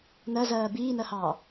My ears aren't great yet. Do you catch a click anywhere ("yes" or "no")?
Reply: no